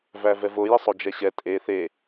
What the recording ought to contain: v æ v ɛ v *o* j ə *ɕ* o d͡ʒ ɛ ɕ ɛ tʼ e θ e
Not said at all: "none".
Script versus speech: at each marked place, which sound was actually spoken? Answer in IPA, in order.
o, sˤ

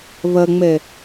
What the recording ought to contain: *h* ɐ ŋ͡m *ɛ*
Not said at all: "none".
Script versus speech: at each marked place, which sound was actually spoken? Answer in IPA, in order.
β, ɛ

